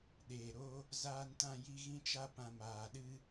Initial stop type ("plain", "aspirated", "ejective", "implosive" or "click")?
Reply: implosive